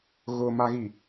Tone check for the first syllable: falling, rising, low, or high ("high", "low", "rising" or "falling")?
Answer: low